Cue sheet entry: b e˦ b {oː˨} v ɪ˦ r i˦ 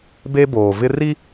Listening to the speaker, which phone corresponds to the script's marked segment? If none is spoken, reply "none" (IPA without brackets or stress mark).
oː˨